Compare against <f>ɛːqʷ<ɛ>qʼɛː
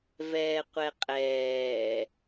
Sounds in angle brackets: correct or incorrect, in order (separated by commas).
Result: incorrect, correct